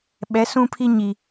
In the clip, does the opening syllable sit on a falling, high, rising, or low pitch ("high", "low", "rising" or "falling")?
rising